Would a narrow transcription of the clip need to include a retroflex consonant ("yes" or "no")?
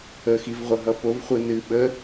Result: no